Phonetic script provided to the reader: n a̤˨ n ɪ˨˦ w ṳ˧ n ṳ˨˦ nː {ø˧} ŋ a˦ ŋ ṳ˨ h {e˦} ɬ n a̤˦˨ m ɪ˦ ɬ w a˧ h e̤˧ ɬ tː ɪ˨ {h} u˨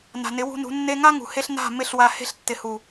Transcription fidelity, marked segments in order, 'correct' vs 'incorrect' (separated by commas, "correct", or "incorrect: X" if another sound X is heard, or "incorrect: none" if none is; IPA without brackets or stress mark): incorrect: e˧, incorrect: e˧, correct